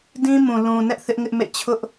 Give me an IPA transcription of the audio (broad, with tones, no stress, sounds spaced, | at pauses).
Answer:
d ĩ˦ m ũ˨ l ũ˨ n ɛ˦ ʔ θ ɪ˦ ʔ ŋ ɪ˦ ʔ m ḛ˦˨ t͡ɕʰ ʊ˦ ʔ